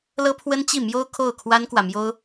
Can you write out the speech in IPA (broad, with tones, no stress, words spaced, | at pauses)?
lɤ˥pʰwə˥nt͡ɕi˥˩mjo˥ʊ̯ kʰo˥˩ʊ̯kʰwa˥nkwä˨mjo˥ʊ̯